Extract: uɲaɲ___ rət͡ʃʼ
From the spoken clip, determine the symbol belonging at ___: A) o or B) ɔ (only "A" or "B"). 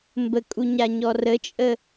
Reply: B